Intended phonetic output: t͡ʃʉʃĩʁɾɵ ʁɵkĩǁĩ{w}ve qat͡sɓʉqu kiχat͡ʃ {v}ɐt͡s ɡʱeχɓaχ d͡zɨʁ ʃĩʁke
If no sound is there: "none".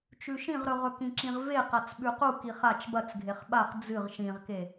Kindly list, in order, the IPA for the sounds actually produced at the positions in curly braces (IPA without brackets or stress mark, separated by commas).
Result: ʁ, b